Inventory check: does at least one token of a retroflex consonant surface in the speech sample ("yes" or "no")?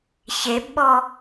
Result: no